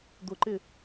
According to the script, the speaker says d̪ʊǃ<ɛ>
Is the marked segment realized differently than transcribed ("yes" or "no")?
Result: yes